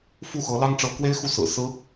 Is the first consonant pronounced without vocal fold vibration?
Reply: yes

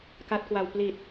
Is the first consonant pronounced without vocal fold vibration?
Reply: yes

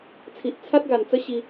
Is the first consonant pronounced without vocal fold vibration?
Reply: yes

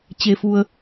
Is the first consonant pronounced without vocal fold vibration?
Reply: yes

